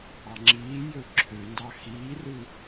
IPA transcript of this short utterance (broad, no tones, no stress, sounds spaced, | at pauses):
ɑ ŋ͡ǁ iː j ø ǁʰ ø n d ɑ x iː r ɯ